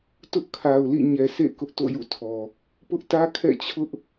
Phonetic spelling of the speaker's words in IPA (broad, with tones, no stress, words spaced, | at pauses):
tʊ˦ʔkʰa˨ʊ̯lḭ˦˨ ɲɛ˨sḛ˦˨ kʊ˦ʔto̰˦˨jṵ˦˨tʰɔ˨ | pʊ˦ʔ tä˦kʰɛ̰˦˨ t͡ɕʰʊ˦ʔ